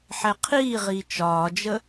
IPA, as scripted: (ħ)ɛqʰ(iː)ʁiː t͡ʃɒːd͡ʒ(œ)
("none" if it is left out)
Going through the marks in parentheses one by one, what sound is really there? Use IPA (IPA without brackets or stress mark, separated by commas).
ħ, iː, ə